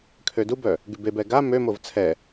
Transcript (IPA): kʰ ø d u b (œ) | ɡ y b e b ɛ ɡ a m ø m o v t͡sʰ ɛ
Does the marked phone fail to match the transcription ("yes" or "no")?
no